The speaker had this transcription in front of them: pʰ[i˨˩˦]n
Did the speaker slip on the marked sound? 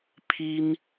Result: yes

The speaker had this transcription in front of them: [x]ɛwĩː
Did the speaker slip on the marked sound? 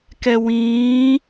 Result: yes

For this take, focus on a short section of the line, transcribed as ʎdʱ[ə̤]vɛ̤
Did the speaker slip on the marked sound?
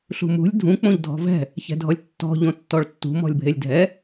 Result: yes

